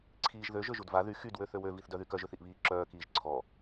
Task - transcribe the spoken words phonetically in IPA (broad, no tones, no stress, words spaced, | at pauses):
ǀʰiːʒðø ʒøʒudva ðy xyd wøθøwø viθdœðykœʒ øθiʔβiːǁœː kiːʒǀʰɔ